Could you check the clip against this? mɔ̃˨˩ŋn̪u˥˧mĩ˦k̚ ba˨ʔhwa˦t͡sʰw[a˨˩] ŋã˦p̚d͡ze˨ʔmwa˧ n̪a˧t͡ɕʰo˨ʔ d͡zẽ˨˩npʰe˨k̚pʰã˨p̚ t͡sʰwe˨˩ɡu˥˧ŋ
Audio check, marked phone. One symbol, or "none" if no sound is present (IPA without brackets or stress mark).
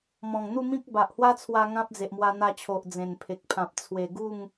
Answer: a˧